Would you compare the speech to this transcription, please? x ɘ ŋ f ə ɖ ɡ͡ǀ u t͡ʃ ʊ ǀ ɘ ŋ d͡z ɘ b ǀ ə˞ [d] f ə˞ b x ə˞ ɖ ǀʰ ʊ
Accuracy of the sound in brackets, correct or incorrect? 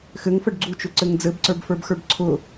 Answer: incorrect